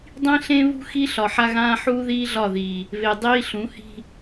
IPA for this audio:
dˤ ĩ˦ ɬ ẽ˦ β ṳ˦ x i˦ ɬ ɒ˨ ħ a˦ ɣ ãː˦ ħ uː˦ ð iː˦ ɮ ɒ˦˨ ð iː˨ | β e˨ dˤ iː˦ ɬ ũ˨˦ h i̤˦

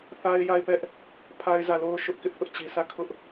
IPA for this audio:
θ a˦ ɪ̯ j a˦˨ ɪ̯ p ɛ˦ ʔ | pʰ a˦ ɪ̯ z ä˦˨ l o˦ ʊ̯ ʃ ʊ˦ ʔ k ɪ˦ ʔ θ ʊ˦ ʔ t͡ɕ i˨ s ä˦˨ kʰ ʊ˦ ʔ

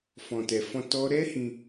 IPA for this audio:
f ɔ̃˨ t ɛ˨ f ɔ̃˧ t ɔ˦ ɾ ɛ˦ h ĩ˧

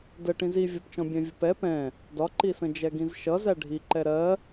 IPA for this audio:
d ə ʈ ĩ z i vʲ ʌ p t͡ʃ ɔ̃ bʲ æ̃ vʲ ʊ p ɛ p ɛ̃ | d ɒ ǃ i s ə̃ d͡ʒ ɛ ɡ ĩ z ʃ ʌ z æ ɖʱ i ǃ ɛ ɾ ɜ

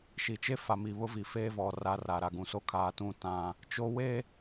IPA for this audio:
ʃ i˨ t͡ʃ e˦ f a˨ m i˨ β ʊ˦ v i˨ f eː˦ v ɔ˨ r a˦ r a˨ ɾ a˨ ɡ ũ˨ s o˦ kʰ aː˨ t ũ˦˨ t ã˦ | t͡ʃ o˦ w e˦

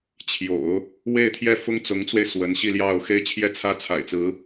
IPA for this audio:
t͡ɕʰ j o̰˨˩˦ ʊ̯ | w e˥˧ ɪ̯ t̪ʰ j ɛ˥˩ f ʊ˥ ŋ t͡s ʊ˧˥ ŋ t͡s w e˧ ɪ̯ s w ə˧˥ n ɕ i˥˧ l j ɑ˥˧ ʊ̯ x e˥˧ ɪ̯ t͡ɕʰ j ɛ˥˧ t͡sʰ ä˥˩ t͡sʰ a̰˨˩ ɪ̯ t͡s ɹ̩˧˥

